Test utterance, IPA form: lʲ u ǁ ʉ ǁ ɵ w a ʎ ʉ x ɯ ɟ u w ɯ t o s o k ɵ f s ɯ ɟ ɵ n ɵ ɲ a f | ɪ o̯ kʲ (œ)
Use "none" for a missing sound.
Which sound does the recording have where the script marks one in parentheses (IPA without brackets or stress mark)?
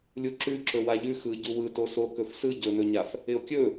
ɵ